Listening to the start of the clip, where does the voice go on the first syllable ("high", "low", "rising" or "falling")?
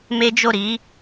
high